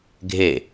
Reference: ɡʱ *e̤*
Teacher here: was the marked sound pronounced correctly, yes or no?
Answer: no